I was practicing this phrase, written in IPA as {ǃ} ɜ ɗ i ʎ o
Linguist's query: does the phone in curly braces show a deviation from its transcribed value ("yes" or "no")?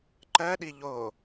no